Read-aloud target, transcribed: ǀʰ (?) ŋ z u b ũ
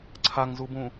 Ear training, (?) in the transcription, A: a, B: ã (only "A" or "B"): A